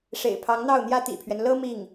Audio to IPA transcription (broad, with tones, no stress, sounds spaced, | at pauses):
ʂ ḛ˨˩ ɪ̯ pʰ ɑ˧˥ ŋ n̪ ɑ˥˩ ʊ̯ n̪ j ä˥ t̪ ḭ˨˩ pʰ ɥ ɛ˦ n l ɤ˥ m i˥˩ ŋ